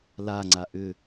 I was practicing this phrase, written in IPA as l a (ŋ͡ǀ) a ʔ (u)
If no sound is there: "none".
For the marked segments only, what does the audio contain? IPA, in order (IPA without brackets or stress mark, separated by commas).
ŋ͡ǀ, ʏ